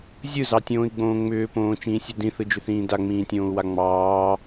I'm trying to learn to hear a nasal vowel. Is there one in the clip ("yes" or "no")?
yes